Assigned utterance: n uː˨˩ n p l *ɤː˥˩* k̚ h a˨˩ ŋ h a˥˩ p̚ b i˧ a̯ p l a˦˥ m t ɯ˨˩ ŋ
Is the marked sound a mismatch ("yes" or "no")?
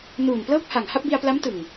no